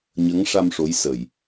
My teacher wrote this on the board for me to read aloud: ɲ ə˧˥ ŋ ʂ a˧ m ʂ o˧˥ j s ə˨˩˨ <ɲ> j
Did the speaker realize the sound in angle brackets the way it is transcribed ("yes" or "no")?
no